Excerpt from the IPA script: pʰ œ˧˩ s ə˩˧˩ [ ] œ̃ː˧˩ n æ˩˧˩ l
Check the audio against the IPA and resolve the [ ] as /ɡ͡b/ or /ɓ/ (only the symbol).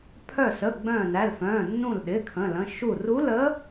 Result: ɡ͡b